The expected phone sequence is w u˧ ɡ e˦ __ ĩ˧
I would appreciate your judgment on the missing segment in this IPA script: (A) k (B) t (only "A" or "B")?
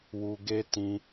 B